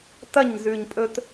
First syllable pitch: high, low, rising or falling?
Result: falling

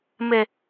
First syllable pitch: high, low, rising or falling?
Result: low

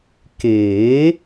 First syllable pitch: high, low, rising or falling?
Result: rising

